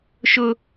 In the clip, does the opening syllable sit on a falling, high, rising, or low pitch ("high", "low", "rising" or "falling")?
high